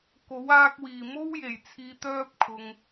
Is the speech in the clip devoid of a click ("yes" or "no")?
yes